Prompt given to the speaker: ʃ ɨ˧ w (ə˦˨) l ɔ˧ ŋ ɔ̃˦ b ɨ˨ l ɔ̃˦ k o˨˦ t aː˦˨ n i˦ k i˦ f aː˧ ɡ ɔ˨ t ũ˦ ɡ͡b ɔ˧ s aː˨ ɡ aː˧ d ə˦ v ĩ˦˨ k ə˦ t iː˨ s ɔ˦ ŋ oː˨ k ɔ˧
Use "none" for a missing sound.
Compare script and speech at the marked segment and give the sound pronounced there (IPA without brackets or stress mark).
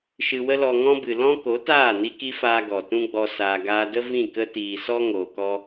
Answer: ə˦